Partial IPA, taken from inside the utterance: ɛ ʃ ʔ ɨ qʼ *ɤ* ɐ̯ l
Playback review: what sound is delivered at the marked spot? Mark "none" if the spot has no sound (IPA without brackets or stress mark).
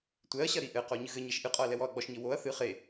ɔ